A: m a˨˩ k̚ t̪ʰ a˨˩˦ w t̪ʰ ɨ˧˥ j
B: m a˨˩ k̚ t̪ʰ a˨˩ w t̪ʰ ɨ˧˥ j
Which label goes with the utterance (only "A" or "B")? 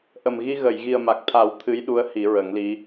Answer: A